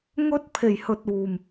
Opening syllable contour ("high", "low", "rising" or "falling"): high